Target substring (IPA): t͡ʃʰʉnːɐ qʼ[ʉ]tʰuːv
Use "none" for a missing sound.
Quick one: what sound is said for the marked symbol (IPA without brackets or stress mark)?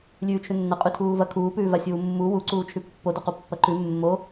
ʉ